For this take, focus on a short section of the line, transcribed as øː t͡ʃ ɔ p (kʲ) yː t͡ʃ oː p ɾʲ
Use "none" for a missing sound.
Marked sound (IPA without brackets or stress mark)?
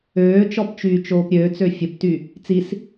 t͡ʃ